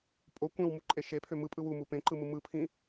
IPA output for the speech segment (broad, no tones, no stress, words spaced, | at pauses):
pʼo kʷẽwmuǃʼe ʃepʰø mɯpʼɯ wumu pẽǃɯmɯ mɯpʰĩ